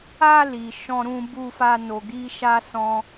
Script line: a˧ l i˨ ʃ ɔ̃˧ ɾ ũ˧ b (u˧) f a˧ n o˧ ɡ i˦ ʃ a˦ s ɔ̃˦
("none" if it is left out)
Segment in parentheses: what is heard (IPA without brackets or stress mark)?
u˧